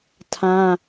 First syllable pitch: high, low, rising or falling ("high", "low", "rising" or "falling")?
high